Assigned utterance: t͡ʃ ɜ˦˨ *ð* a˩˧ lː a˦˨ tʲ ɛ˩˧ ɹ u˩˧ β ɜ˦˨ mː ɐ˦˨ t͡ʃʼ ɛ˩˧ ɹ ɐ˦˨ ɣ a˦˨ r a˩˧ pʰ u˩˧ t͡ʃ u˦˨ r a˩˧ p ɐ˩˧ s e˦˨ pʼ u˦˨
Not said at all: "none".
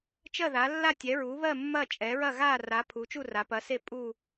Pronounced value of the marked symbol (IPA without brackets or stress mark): ð